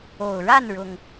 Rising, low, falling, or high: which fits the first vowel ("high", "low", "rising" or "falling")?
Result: low